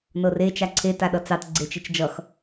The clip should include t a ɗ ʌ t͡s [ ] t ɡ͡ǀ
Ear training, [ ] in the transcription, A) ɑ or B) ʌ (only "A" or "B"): A